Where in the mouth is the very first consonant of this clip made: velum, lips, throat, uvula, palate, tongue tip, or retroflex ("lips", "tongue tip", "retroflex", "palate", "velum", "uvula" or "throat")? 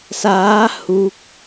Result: tongue tip